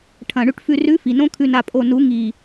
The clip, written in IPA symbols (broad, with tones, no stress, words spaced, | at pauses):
ʈʰɐ̃˨ ɳʉ˨ʈfʉ˨rʉ˨˦ fi˨nõ˦ kʰʉ˨na˨pʼo˨ nu˨˦ŋi˨